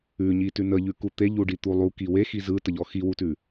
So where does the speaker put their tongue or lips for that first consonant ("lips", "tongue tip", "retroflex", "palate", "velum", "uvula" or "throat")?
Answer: palate